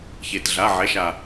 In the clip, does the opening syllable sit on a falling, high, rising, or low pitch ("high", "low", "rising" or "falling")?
low